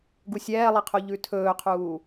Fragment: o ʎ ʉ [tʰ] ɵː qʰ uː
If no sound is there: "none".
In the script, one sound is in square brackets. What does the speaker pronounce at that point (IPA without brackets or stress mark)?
tʰ